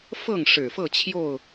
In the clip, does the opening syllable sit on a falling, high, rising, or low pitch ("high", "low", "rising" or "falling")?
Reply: falling